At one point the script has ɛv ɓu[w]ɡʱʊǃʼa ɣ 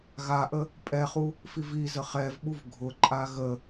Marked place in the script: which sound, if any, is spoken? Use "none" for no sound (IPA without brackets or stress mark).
v